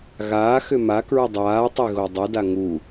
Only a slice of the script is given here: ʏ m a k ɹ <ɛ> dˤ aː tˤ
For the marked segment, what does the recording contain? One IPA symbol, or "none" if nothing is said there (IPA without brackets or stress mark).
ʏ